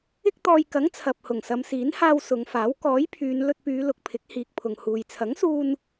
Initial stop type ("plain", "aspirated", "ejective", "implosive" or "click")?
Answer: plain